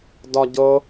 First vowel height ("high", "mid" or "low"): low